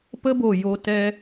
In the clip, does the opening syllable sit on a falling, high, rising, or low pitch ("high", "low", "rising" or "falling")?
high